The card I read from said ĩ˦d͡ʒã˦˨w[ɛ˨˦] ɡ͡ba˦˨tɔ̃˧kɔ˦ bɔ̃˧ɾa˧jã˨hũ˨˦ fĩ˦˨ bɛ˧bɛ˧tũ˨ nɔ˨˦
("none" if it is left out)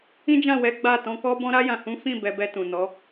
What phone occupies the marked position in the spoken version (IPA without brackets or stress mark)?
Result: ɛ˨˦